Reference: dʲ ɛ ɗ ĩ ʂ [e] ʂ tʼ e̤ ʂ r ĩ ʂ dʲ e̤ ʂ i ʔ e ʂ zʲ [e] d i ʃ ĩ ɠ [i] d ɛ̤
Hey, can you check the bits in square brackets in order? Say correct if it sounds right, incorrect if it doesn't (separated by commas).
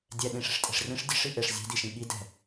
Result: incorrect, incorrect, correct